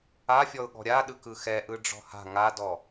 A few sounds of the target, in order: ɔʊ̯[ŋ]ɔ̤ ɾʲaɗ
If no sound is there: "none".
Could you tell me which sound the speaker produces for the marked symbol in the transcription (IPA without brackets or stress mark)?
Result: ɠ